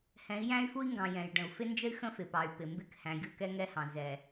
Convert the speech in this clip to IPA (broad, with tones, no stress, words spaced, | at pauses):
hɛ̃˨˦i̯jæ̃˦y̯fu˦i̯ŋɡɑ̃˨ jɛ̃˨jɖə̃˨u̯ fɪ˦nd͡ʒə˦y̯ xə̃˦fɪ˨pɑ˨y̯ pɪ˨ mbɪ˦˨khæ̃˨ɡʲu˦˨ kɛ˦ŋɛ˦hɑ̃˨ zɛ˨